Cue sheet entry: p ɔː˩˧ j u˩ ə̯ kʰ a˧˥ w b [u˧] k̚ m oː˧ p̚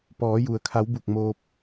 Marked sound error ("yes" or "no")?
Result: yes